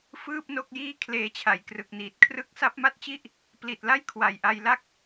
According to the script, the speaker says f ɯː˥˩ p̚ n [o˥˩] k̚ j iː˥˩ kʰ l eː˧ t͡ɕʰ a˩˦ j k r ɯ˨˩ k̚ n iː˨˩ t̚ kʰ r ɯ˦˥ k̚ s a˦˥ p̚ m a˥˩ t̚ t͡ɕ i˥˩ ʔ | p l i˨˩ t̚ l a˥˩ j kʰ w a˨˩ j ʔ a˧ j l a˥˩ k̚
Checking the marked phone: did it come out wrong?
no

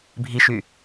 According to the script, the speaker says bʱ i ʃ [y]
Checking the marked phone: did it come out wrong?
no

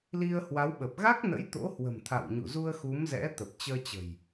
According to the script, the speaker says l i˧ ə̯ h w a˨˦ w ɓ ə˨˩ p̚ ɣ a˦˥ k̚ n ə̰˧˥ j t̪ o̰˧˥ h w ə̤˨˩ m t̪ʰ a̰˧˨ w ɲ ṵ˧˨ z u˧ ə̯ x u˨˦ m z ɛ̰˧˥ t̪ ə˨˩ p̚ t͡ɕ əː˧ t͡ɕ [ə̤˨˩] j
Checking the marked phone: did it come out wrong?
no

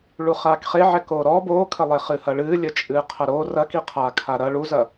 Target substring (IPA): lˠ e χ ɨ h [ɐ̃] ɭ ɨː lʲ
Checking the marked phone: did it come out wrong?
yes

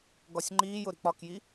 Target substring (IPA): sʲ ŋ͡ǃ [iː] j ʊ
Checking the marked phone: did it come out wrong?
no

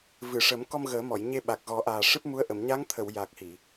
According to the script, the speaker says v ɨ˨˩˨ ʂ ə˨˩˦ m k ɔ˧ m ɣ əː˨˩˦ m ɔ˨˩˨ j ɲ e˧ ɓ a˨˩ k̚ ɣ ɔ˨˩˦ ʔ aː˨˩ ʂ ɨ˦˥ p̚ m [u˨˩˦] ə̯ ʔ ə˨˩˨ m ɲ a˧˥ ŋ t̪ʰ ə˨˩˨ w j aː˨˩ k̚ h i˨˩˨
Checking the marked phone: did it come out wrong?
yes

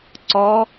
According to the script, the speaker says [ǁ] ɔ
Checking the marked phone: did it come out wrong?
yes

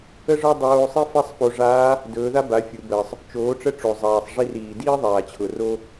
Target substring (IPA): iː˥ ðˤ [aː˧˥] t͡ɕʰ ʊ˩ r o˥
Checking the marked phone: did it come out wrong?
yes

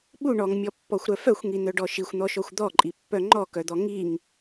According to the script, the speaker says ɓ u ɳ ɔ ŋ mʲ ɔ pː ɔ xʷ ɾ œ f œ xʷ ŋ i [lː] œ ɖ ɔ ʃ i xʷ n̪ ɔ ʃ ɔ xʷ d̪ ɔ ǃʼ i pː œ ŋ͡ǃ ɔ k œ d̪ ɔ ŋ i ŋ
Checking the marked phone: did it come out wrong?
yes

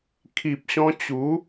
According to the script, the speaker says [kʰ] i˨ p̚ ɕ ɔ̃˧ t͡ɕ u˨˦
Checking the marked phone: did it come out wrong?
no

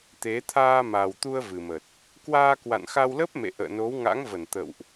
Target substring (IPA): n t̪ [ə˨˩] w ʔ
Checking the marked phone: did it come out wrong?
yes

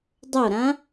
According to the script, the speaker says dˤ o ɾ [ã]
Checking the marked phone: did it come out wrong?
no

